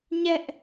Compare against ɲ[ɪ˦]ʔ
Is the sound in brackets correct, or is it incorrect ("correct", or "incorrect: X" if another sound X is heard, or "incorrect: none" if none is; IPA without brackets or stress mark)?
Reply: incorrect: ɛ˦